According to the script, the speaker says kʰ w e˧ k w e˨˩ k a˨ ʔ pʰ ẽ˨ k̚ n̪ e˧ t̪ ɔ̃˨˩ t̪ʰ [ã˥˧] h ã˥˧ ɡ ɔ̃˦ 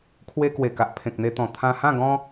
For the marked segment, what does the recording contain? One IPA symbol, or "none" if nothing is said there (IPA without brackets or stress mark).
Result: ã˧